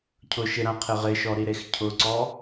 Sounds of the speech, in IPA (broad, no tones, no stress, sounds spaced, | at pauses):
cʰ ʊ ʃ ɪ ɾ ã qʰ ɪ ʁ ɪ ʃ ɔ ɾ i ɾ e x cʰ ʊ ǀ ɔ